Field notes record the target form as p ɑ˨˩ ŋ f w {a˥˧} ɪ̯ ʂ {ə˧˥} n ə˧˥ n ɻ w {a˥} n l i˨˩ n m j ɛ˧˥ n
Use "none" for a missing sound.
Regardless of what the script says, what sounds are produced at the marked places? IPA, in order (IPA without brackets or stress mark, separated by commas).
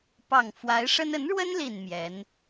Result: a˧˥, ə˥, ə˥